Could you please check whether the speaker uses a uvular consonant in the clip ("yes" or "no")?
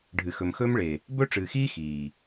no